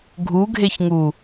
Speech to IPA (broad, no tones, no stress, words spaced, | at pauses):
ɡʱuɡʱeçŋu